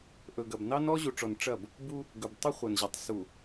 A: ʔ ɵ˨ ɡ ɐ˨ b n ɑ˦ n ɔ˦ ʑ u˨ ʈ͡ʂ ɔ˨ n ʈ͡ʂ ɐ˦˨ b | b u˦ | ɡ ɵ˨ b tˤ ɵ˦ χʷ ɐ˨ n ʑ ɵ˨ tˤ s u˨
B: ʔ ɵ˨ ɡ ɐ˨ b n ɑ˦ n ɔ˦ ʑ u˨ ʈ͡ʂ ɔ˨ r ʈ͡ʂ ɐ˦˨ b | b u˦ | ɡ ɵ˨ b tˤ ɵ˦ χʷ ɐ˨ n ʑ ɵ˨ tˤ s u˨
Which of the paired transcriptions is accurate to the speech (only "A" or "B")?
A